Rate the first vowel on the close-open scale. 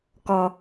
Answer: mid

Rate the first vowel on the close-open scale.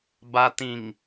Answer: open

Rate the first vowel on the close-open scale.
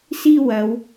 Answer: close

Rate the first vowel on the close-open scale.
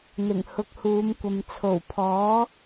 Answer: close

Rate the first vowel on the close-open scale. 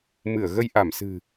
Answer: close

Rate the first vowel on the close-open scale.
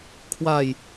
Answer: open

